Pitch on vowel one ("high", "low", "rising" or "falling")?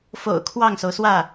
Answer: low